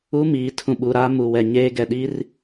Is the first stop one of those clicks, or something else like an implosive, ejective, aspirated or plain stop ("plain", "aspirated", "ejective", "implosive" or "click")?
aspirated